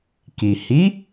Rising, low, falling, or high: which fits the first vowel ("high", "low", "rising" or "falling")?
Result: low